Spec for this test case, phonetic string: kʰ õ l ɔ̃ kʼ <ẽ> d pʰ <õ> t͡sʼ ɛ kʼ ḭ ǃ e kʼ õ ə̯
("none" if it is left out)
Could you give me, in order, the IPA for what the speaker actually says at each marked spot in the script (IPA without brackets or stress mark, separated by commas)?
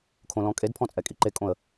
e, ɔ̃